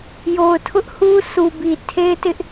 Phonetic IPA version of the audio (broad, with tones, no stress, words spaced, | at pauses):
jo˨ʊ̯tʰʊ˦ʔ hu˦ sʰu˨bi˨ tʰe˦ɪ̯tɪ˦ʔ